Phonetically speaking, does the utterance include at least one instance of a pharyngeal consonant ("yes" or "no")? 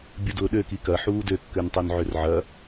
yes